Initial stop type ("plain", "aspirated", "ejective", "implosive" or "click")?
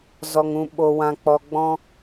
implosive